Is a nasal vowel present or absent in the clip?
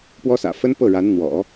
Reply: absent